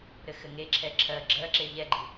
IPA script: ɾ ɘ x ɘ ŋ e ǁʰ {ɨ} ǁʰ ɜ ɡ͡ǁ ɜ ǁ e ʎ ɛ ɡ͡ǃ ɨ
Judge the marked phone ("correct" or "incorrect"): incorrect